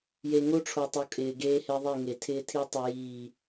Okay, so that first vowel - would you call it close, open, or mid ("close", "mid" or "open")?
mid